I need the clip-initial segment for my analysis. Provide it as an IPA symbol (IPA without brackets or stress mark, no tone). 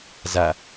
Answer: z